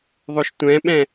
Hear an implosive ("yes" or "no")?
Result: yes